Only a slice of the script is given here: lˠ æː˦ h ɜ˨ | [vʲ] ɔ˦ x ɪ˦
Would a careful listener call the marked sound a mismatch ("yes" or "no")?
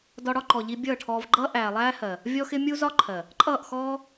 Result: no